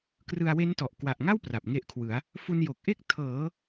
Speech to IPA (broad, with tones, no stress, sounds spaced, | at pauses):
k r ɯ˧ a̯ w e˦˥ n t ɔ˨˩ ʔ k w a˨˩ ʔ ŋ a˥˩ w p r a˨˩ p̚ ŋ e˦˥ ʔ kʰ w ɯ˩˦ a̯ | f u˧ n j o˨˩ k̚ ʔ e˥˩ k̚ tʰ ɤː˩˦